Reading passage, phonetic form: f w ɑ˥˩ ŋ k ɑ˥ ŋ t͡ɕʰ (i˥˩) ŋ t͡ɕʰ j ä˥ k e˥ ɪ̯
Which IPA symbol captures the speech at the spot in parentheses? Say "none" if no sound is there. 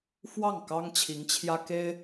i˧˥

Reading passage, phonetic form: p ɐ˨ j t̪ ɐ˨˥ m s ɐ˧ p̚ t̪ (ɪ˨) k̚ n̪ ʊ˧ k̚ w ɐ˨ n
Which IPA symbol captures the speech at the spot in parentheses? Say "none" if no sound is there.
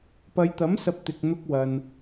ɪ˨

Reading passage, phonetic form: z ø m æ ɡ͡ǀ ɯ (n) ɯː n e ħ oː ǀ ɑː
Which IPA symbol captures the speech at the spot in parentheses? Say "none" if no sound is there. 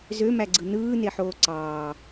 n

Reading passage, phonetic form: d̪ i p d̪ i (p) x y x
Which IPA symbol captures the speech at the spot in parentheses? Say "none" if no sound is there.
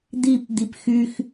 p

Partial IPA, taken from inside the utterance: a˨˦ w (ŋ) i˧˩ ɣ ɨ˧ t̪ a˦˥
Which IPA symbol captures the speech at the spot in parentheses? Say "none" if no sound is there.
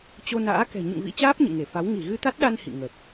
ŋ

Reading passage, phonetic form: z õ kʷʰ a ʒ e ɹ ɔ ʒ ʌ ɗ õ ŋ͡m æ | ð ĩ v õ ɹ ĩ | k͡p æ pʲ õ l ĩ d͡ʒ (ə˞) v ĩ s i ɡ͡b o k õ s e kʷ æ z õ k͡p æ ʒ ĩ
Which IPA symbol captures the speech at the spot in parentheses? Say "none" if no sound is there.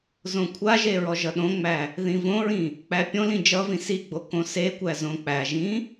ʌ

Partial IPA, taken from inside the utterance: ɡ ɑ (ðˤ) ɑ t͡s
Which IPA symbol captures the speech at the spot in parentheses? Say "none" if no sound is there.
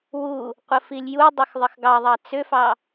ðˤ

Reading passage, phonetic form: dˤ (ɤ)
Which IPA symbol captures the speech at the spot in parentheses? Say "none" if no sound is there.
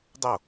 o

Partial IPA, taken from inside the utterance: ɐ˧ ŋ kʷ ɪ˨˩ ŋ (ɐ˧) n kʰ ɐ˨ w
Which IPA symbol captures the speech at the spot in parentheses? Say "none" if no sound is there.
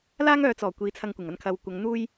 ɐ˧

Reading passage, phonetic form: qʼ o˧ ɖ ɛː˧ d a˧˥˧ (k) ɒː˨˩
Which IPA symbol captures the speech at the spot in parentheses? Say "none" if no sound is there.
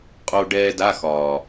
x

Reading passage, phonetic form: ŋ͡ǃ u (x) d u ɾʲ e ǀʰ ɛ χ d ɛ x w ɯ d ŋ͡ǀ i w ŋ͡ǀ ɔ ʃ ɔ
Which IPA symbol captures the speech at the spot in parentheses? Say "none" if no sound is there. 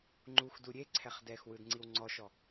x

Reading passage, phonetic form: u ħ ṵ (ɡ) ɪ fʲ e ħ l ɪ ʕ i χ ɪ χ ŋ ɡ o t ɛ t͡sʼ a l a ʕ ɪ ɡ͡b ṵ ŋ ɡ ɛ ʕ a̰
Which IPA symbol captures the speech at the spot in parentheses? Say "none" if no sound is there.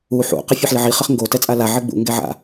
q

